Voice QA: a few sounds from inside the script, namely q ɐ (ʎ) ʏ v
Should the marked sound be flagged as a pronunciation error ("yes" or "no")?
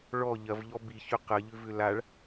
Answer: no